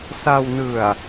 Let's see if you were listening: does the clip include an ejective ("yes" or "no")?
no